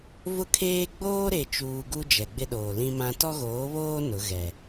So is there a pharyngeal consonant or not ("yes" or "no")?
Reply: no